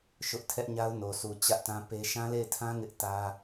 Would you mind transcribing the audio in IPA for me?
ʃ ʊ˦ ʔ tʰ ɛ˦ ʔ ɲ a˦ ʊ̯ n o˨ sʰ u˨ t͡ɕ ä˦ ʔ t ã˦ p e˦ ʃ ã˦ l e˦˨ ɪ̯ tʰ ã˦ ŋ ɪ˦ ʔ t ä˦

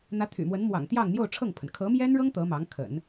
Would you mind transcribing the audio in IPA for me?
n̪ ä˧˥ t̪ʰ y̰˨˩ m w ə˧˥ n m w ɑ̰˨˩ ŋ t̪ j ɑ˥˧ ŋ n̪ j o˥˧ ʊ̯ ʈ͡ʂʰ ɤ˥˩ ŋ pʰ ə˩ n kʰ ɤ˧˥ m j ɛ˥ n ɻ ɤ˥ ŋ t̪ ɤ˧˥ m ɑ˧˥ ŋ kʰ ə̰˨˩˦ n

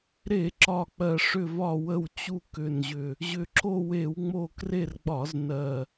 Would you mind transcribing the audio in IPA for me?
ɾ e˧˩˧ ǁ ɒ˨˩ k͡p ɜ˨˩ ʂ ʏ˦˨ v ɒ˦˨ w ə˦˨ w t͡ɕ u˦˨ k ʏ˦˨ n ʑ ʏ˦˨ | ʑ ʏ˨˩ ǁ o˦˨ w e˧˩˧ w ŋ͡m o˦˨ k r e˦˨ r ɡ͡b ɒ˧˩˧ z n ɜ˨˩

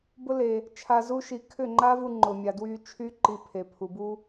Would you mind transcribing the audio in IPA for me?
b ʊ˦ l e˨ | t͡ʃʰ a˧ z u˦ ʃ i˧ kʰ ʏ˦˨ ŋ͡ǃ a˦ v u˧ ŋ͡ǃ ʊ˨ mʲ a˨ d w y˧ t͡ʃʰ y˦ ǃ i˧ pʰ e˨ pʰ u˨ b u˦

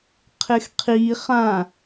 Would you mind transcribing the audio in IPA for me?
qʰ ɪ x qʰ i χ ã

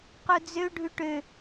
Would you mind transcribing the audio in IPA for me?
q u d͡z ø ɖʱ ʉ ʈ ø

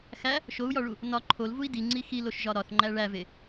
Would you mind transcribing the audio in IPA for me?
x æ | ʃ o u̯ j ɒ ɭ u | n ɒ ǃʰ o l v u i̯ d i ŋ͡ǀ i x i l o ʃ ʒ ɒ ɾ ɒ θ ŋ͡ǃ æ ɭ æ v e

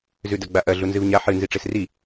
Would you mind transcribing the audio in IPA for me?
z ʉ d ɐ ɡ͡b a ʔ ɐ ɮ u n z ɨ v ɲ a ħ ɨ n z i ʈ͡ʂ e s r i

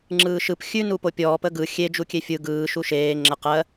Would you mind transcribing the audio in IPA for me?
ŋ͡ǁ ɯː ʃ ɯ p xʲ ʉ n u p o pʲ ɔː p ə ɡ ɯ xʲ e d͡ʒ u kʲ e fʲ ɯ ɡ ɯː ʃ u ʃ eː ŋ͡ǁ ə q ɜ

